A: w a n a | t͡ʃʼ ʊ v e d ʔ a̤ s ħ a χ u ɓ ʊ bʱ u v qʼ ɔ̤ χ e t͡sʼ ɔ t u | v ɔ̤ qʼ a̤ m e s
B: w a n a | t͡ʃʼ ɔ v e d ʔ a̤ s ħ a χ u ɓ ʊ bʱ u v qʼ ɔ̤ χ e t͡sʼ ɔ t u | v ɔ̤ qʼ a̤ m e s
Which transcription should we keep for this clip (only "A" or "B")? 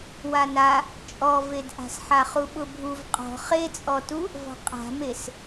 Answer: B